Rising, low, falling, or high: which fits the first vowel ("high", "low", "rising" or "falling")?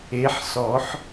rising